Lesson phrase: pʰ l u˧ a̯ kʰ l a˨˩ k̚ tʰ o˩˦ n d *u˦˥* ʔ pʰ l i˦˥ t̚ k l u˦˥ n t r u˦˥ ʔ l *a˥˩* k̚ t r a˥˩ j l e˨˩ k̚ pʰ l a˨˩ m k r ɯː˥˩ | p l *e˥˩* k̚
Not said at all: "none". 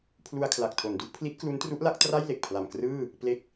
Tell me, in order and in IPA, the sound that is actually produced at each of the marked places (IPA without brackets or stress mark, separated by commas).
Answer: u˦˥, a˦˥, e˦˥